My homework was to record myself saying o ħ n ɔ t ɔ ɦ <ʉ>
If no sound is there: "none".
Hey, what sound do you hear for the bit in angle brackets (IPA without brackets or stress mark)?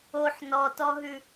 ʉ